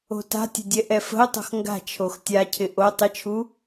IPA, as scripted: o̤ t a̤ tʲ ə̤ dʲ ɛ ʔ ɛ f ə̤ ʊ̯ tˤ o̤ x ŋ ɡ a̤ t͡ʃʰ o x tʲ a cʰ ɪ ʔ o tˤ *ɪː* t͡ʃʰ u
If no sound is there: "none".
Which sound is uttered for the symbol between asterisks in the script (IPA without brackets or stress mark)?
ɪ